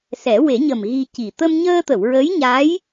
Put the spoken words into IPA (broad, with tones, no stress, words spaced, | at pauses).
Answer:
sɛ˨˩˦ we˨˩˦ɲə˨˩m ɣi˧ci˨˩ t̪ə˧mɲəː˧t̪ə˨˩˨w ɹə˧˥jɲa˧˥j